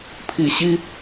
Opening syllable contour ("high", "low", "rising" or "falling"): low